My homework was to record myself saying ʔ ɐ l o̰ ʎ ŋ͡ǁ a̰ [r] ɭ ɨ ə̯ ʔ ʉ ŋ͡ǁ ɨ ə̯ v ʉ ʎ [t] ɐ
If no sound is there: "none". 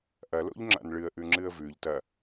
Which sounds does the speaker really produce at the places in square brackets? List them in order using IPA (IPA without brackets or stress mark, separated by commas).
n, t